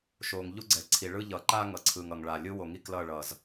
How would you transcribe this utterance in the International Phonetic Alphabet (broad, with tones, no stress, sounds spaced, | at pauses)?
ʃ o˨ ŋ ʎ u˦ ɡ͡ǀ ɛ˨ ǀʰ i˨ ɭ ɯ˦ ʎ ʌ˨ ǃ a˦ ŋ ʌ˨ ǀʰ ɯ˨ ŋ ʌ˨ ŋ ɭ a˨ lʲ ɯ˦ w o˨ ŋ i˦ k l ʌ˦˨ ɭ ʌ˨ z